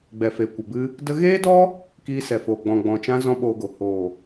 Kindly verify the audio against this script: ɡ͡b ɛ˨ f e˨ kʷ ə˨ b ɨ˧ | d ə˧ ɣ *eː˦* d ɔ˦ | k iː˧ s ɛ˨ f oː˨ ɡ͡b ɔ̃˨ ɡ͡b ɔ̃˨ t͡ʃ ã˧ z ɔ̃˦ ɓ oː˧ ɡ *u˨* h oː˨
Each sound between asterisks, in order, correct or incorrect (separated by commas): correct, incorrect